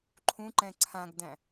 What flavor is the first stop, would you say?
click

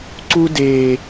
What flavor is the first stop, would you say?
click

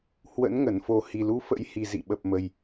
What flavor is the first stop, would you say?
implosive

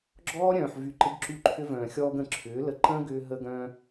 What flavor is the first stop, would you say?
click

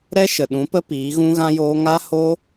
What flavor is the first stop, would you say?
implosive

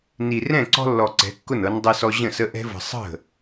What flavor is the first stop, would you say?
click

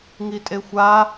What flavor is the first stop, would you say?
ejective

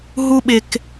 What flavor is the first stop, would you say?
implosive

